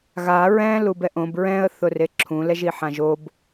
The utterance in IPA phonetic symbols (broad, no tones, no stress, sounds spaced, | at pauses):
ɣ a ɹ ɛ̃ l u b ɛ ʔ õ b ɹ ɛ̃ ə̯ θ ʊ r e ǁʰ ũ l ɛ ʒ i ħ ã ʒ o b